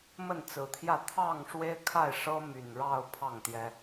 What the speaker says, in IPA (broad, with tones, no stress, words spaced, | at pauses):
mə˥˨nt͡sɹ̩˨˩t̪ʰjä˥˨ t̪ʰɑ˥˨ŋ ʂwe˦ɪ̯kʰa˥˨ɪ̯ ʂɤ˦ my˨˩nɻɑ˥˨ʊ̯ pʰɑ˥˨ŋt̪jɛ˦